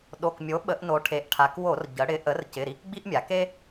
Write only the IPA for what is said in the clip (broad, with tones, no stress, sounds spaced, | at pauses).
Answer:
ɗ o˩˧˩ k mʲ o˩˥ ɓ ə˩˧ ʔ n o˩˧ ʈʰ e˩˧ ʔ ʈʰ a˩˧ k w o˧˩˧ r ɟ ə˩˧ ɽ ɪ˩˥ ʔ ə˩˥ r c ɪ˩˧˩ ɾ i˦ k ɡ͡b i˦ ʔ mʲ a˩˧ k e˦